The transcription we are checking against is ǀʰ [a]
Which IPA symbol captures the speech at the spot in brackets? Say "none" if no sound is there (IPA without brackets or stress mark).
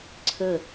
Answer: ə